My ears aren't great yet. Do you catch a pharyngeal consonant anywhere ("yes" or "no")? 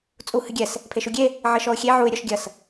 yes